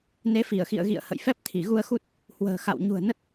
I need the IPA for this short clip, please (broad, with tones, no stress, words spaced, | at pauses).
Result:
ne˨˦fi˧˩ə̯xḭ˧˨ə̯ɣḭ˧˨ə̯ hə̰˧˨jfɛ˦˥p̚ t̪ʰi˧˩ɣu˧ə̯xu˦˥t̚ | hwə̤ː˨˩xa̰˧˨w ɲṳ˨˩ə̯nə˦˥t̚